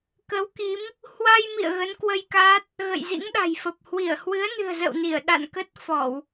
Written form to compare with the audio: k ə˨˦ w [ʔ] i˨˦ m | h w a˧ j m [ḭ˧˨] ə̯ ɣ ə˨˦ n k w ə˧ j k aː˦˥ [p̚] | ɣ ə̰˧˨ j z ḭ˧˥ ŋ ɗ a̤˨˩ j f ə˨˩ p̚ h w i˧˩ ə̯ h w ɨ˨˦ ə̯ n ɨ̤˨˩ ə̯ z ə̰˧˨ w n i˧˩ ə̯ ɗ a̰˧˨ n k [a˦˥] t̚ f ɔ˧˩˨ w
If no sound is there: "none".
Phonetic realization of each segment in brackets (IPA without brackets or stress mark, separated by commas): k, ḭ˧˨, t̚, ə˦˥